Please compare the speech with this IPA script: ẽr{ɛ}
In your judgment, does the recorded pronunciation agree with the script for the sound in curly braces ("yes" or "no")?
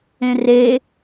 no